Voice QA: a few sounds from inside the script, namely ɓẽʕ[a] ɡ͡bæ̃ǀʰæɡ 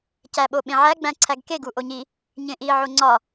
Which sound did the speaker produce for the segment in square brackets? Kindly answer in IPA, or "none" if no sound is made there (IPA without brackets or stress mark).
æ